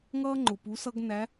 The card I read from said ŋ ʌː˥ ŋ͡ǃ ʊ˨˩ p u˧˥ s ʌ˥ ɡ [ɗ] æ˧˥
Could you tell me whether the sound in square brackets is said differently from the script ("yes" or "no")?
yes